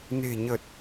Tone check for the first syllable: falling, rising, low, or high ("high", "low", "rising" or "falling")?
low